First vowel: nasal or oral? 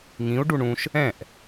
nasal